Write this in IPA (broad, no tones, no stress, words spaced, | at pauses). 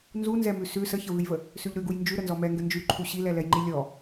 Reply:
nzunzɛmʉ sʉ səçəvʉjvə | sʉʎɾʉɡuj nd͡ʒʉ ɾənzɔmɛŋɡə nd͡ʒʉǃʰu ɕilɛlɛjŋ͡ǃi lʲɔ